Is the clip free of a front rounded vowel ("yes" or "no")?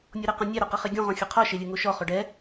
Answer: yes